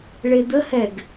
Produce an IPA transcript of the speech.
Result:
ɭ e d̪ ə h ɛ ɡ

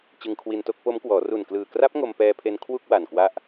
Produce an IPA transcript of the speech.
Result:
t͡ɕ ɯ˧ ŋ kʰ w i˧ n t o˥˩ k̚ p o˦˥ m k w ɔː˩˦ r u˨˩ n k l ɯː˨˩ k r a˦˥ p̚ ŋ o˧ m p ɛː˧ pʰ e˧ n kʰ w u˥˩ k̚ w a˨˩ n k w a˦˥ ʔ

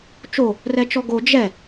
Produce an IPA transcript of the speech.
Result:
t͡ʃ o | r ɛ t͡ʃ ɔ ɡ o d͡ʒ ɛ

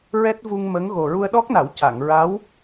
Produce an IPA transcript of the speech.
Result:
ɹ ɛ˦˥ t̚ v u˧ ŋ m ə˧˥ ŋ ɣ o˨˩ ɹ u˧ ə̯ ɗ ɔ˦˥ k̚ n a˨˩˦ w c a˨˩˨ ŋ ɹ a˧˥ w

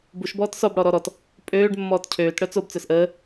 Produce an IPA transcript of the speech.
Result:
b u ʃ b ɔː t s ɔ b ɽ ɔ ɾ ɔ ɾ ɔ t | pʼ øː ɖ mː ɔː t cʰ øː t ɽ œ t͡s o b t͡s œ s ʔ əː

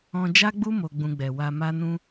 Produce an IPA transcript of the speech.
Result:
ɔ̃˧ d͡ʒ a˦ ɡ͡b u˦ m o˧ ɡ͡b ũ˧ ɡ͡b ɛ˨ w a˧ m a˦ n ũ˦

